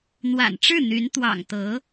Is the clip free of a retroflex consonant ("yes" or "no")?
no